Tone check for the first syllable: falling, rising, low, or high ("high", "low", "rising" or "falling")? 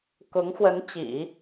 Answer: rising